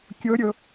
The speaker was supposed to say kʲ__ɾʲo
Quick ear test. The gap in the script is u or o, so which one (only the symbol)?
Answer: o